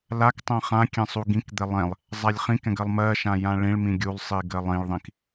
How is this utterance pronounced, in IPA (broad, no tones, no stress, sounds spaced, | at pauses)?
l a k tˤ ɛ̃ χ ã kʲ ɛ̃ sˤ u ɡ ĩ k d̪ ɛ lˠ ɛ̃ lˠ | zˤ a lʲ χ ĩ k ɛ̃ ɡ ɜ lˠ m ɜ ʃ ã j ã ɭ ĩ ɭ m ĩ ɡʲ u lˠ sˤ i ɡ ɜ lˠ ĩ ɭ ðˤ ĩ k